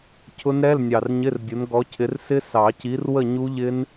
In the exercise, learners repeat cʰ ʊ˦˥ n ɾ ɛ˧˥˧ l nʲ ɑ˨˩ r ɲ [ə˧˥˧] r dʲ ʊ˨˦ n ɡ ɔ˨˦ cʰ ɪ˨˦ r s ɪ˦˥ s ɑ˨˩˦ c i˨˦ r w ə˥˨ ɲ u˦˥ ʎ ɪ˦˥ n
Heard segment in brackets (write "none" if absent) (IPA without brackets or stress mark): ɪ˧˥˧